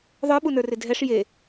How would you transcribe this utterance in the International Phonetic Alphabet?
ðˤə˞ɓunə˞rɪ dʱɛʂ je

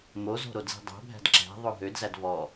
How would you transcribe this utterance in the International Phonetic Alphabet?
mozo̤ ɾodzi̤dˤæ̤bʱæ̤d ǁæ̤ ðˤoɦødzæd vɔ

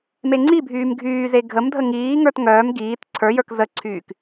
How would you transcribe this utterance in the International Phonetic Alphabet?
meŋ͡ǀibʱyːm ɡʱyːze ɡʱəmdʱə ŋiːŋə˞t ŋœːm ɡiːt ǀʰə˞jə˞k zəǀʰyːk

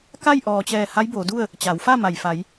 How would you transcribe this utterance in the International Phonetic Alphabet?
ka˥˨jʔɔː˩t͡ɕɛː˧˩ ha˧˥jboː˩˧du˥˨ə̯ | t͡ɕa˩˧wfa˥˨ma˩j fa˩˧j

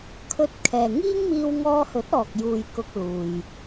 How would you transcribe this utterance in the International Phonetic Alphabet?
kʰɵ˧t̚ kʰɛː˨ ŋiː˥ŋmiː˧w ŋɔː˧hɵ˨˥t̚ɔː˨k̚ juː˨j kʊ˧k̚luː˨j

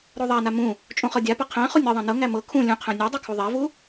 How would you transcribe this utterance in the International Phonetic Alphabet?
ɾoðˤana mũ | t͡ʃʼũχɤdʲapa qʰæ̃ χunʲɤðˤæ̃ nɤŋæ mɤ kʰũ lʲũqʰæ̃ nʲædˤu kʰuðˤævu

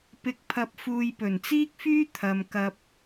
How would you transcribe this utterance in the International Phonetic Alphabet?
pɪ˨k̚pʰɐ˨p̚fuː˨j pɵ˨˩nt͡siː˥k̚fyː˥ t̪ʰɐ˨m kɐ˧p̚

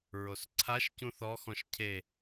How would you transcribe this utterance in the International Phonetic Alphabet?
ɹosǀʰaʃ cũθɔxɔ̃ʃ cʰe

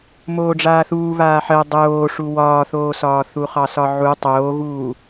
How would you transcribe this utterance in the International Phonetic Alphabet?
moːɖ͡ʐaːθuː βaːħɜ dˤoːʂu wɒːθoːsɒː θuχɑsɒʕu tˤoːɣuː

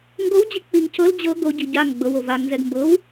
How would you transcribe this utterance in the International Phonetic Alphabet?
ŋɡowd͡ʑi k͡piŋ cʰɤl d͡ʑɤ ɡoɟi ɟaŋ ɡ͡bɤwo vaŋnzɛɡ mbɤw

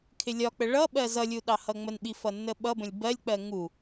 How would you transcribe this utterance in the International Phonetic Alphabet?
kʰɪlʲɒk͡pə ɭʌɓɜ zʌlʲu ɗɑhʌŋ͡mənɓi fʌnːəɓʌbə̃lʲ bɜlʲk͡pɜ ŋu

